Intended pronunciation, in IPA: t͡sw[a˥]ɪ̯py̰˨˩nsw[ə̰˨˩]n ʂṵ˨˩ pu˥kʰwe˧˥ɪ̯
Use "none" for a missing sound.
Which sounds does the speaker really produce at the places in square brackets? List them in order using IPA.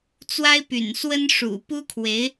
a˥, ə˥

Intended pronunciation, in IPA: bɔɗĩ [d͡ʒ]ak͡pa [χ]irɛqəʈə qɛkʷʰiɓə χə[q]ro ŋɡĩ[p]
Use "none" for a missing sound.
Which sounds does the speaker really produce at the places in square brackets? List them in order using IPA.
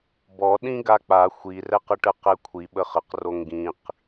ɡ, xʷ, q, q

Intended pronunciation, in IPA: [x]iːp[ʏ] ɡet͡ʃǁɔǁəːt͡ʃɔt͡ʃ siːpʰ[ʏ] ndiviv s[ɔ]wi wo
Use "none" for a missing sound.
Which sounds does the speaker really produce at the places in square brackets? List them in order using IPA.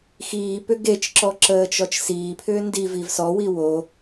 x, ʏ, ʏː, ɔ

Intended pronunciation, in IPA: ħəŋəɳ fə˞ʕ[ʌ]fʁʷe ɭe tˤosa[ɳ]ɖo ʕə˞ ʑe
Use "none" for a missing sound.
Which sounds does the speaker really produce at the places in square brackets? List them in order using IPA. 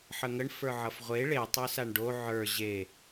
ʌ, ɳ

